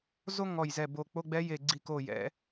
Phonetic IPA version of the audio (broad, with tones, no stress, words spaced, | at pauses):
zo˥ ŋɔ˧˩jzɛ˧˩bo˧˩k͡po˧˥˧ ɡ͡bɛ˧˥je˧˩ɡ͡ǀi˧˩ko˧˩ jɛ̰˩˧